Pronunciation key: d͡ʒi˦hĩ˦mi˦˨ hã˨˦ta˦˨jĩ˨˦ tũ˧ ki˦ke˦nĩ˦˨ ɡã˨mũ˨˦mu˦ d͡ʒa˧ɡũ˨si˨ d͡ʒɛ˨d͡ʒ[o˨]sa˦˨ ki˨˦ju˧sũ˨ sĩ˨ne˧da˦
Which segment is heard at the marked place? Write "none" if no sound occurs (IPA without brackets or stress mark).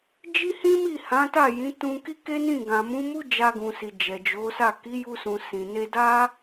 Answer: o˨˦